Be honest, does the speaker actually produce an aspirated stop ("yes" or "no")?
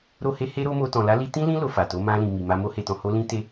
no